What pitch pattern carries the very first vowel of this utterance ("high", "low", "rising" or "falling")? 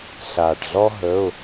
low